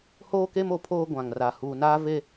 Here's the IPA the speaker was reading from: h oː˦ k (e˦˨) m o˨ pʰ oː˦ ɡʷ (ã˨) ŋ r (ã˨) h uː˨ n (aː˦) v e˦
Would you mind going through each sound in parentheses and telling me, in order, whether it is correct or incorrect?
incorrect, correct, incorrect, correct

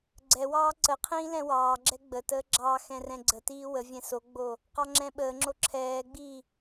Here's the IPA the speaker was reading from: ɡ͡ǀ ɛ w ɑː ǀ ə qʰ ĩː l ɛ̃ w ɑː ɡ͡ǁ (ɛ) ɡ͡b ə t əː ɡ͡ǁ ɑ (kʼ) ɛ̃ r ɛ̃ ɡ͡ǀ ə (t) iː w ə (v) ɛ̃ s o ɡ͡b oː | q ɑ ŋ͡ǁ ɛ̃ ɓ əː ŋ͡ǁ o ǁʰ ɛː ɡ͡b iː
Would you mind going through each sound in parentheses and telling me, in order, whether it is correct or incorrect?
correct, incorrect, correct, incorrect

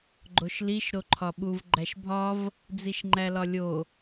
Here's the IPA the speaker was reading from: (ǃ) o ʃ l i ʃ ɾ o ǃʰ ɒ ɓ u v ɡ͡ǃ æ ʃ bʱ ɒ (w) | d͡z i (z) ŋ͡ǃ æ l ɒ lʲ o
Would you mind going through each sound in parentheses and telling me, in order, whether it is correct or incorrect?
incorrect, incorrect, incorrect

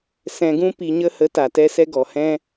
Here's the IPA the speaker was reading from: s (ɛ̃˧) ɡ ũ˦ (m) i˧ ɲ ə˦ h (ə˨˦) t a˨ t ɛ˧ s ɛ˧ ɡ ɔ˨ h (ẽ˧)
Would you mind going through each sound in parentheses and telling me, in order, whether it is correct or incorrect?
correct, incorrect, correct, incorrect

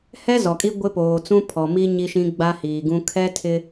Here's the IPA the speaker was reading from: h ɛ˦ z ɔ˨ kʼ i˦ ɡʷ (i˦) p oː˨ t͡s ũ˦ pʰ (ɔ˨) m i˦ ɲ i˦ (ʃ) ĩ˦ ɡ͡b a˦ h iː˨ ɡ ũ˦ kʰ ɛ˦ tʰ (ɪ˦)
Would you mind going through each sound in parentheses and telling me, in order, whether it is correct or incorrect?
incorrect, correct, correct, correct

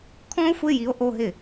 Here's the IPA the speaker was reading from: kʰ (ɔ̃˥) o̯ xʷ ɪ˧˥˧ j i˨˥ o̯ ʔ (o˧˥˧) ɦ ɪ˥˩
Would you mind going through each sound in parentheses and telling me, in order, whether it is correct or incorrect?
correct, correct

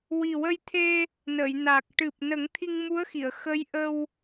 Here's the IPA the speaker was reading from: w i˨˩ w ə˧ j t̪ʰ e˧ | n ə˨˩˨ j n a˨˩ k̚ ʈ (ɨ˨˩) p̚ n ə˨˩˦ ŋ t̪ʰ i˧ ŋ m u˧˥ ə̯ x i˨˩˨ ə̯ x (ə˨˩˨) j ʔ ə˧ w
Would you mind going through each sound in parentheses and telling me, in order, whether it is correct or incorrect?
correct, incorrect

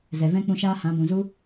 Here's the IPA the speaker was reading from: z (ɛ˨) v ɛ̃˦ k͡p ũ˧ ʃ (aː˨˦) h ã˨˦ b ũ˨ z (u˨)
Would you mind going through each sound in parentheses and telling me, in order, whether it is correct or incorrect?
correct, incorrect, incorrect

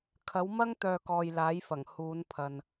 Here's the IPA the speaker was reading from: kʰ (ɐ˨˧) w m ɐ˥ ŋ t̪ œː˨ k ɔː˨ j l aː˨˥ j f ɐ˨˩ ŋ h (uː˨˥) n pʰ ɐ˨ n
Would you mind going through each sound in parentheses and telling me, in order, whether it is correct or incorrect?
incorrect, incorrect

